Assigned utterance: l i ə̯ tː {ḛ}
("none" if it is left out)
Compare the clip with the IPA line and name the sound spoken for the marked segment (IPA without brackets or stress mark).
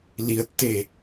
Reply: e